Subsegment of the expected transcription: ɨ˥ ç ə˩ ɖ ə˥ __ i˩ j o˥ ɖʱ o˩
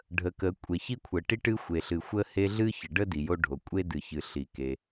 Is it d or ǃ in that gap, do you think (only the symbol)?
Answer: d